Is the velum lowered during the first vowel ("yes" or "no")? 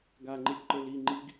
no